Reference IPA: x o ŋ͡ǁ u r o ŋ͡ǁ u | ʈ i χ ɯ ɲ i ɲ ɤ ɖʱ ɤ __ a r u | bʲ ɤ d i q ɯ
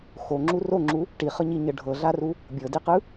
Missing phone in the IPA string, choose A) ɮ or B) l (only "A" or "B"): A